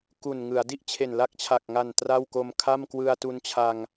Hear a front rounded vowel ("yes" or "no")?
no